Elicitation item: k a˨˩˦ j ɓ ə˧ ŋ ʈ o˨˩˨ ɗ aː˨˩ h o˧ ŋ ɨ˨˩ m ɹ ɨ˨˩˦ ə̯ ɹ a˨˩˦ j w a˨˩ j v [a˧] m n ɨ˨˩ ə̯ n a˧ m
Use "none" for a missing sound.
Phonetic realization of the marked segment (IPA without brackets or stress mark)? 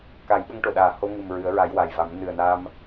a˨˩˦